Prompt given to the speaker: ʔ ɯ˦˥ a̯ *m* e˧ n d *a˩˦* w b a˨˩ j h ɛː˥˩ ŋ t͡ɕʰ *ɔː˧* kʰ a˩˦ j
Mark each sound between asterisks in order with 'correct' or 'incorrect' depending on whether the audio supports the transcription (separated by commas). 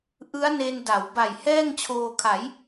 incorrect, correct, incorrect